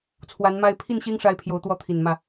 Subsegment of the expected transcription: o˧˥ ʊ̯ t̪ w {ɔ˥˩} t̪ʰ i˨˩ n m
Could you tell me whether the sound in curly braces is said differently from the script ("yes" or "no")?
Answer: no